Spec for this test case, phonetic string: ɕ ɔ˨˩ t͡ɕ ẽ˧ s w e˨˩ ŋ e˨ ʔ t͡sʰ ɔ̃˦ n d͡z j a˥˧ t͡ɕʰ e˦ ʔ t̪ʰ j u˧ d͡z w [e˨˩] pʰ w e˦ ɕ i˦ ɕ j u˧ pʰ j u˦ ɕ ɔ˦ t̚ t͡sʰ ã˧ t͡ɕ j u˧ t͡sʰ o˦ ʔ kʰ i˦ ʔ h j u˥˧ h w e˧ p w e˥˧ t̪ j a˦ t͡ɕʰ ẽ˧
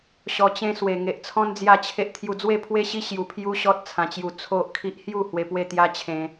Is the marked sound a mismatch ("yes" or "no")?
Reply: yes